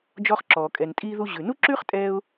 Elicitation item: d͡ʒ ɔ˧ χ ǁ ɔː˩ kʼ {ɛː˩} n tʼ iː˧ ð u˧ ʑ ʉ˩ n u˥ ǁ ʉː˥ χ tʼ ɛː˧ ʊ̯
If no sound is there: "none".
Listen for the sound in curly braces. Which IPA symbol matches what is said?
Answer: ɛ˩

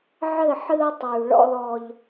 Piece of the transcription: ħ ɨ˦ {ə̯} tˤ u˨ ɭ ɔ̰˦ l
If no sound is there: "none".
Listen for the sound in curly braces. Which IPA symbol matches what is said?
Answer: ʊ̯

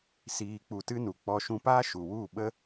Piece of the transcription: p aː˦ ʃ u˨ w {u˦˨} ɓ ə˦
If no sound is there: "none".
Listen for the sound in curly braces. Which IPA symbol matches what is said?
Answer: u˦˨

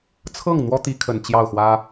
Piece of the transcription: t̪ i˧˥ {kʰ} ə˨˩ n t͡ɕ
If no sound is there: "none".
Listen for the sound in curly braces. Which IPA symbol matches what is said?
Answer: kʰ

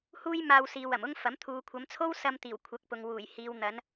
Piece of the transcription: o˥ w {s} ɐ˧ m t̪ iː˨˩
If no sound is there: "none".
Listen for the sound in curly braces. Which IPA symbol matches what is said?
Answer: s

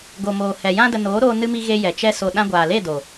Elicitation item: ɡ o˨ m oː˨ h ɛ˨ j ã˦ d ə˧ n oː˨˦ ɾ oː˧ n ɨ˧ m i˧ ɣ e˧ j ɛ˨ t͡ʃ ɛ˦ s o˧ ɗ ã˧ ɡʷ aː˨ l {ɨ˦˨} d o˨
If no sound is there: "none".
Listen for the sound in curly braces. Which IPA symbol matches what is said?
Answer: e˦˨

